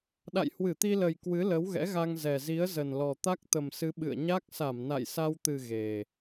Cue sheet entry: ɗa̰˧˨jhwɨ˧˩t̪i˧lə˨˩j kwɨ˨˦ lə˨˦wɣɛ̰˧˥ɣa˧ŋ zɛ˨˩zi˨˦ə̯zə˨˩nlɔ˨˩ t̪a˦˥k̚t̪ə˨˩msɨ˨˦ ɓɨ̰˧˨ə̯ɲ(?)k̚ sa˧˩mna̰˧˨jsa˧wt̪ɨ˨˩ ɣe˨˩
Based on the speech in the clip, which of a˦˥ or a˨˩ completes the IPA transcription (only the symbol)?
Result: a˦˥